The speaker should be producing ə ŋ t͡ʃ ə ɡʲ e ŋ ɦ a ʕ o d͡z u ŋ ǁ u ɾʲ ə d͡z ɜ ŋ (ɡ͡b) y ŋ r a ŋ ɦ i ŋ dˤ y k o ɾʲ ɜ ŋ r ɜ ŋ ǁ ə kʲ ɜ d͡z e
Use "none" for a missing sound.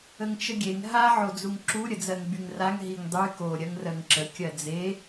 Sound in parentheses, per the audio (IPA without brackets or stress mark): ɡ͡b